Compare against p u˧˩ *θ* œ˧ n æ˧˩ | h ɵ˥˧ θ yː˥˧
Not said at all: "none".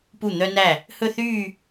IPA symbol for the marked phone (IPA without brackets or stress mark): n̪